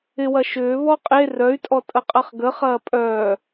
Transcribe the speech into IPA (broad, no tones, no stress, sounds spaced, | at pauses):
ɪ w ɐ ʃ ʏː β ɔ qʼ e r œ y̯ tʼ ɔ tʼ ə qʼ ɐ χ ɡ ə χ ɐː pʼ œː